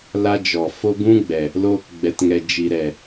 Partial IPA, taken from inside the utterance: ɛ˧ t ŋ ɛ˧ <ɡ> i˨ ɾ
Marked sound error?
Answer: yes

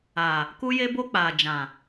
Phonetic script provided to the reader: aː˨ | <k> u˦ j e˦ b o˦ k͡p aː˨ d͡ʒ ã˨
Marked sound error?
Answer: no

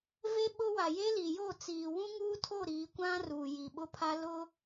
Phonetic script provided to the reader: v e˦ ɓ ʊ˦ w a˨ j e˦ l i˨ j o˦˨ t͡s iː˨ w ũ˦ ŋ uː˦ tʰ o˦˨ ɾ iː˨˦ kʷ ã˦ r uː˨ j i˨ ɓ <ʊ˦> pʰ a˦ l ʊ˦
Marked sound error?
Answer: no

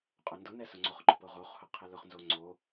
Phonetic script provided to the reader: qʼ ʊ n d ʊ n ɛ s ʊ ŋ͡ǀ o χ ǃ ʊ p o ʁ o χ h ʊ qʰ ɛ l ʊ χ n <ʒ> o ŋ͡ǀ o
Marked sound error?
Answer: yes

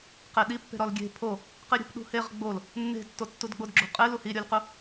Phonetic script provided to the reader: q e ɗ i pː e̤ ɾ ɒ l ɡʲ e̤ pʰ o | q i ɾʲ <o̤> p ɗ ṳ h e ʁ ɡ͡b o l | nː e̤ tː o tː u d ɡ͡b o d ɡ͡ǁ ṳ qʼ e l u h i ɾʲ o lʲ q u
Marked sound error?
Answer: no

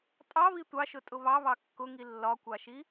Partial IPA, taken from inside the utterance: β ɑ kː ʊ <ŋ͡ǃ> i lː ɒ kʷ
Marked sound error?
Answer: yes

